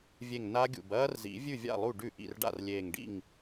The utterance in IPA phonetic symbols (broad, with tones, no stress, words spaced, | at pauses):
vʲe˧˩ŋ na˦˥ɡʲṵ˧˩b ɐː˦˥rzḭ˨˩˦vʲʉ˥˩vʲa̰˥˩ lˠu˥˩ɖʉ˥˩ʔḭ˥˩rɖa̰˥˩r lʲeː˧˩ŋɖḭ˥˩ŋ